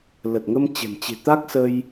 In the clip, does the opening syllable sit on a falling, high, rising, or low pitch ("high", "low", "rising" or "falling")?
low